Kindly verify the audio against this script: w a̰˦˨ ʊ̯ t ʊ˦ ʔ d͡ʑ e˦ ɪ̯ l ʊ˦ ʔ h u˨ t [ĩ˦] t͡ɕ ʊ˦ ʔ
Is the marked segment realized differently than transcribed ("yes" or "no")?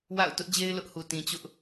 yes